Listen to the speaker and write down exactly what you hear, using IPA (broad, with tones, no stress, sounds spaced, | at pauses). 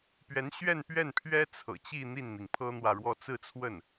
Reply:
p ɥ ɛ˧˥ n ɕ ɥ ɛ˥˧ n p ɥ ɛ˥˩ n pʰ ɥ ɛ˥ t͡sʰ ɤ̰˨˩ t͡ɕ i˥˧ n̪ i˥˩ n n̪ i˩ ŋ pʰ ɤ˥ n̪ w ä˨ ɻ w ɔ˥ t͡s ɹ̩˥˧ t͡sʰ w ə˥˩ n